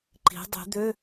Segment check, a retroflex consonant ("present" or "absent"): absent